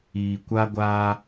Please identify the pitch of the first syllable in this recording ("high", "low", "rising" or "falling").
low